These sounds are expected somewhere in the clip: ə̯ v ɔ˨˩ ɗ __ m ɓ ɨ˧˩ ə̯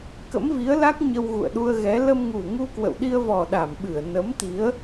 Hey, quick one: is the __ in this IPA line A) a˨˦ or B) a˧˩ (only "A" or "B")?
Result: B